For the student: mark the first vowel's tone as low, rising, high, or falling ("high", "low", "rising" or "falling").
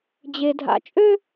high